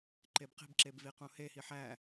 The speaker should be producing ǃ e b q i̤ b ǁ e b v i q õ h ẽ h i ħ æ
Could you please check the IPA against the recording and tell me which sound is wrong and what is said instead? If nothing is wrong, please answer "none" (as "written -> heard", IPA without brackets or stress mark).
ẽ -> e